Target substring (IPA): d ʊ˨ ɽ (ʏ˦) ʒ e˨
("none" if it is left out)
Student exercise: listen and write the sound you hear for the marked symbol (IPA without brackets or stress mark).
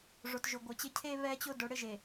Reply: ɪ˦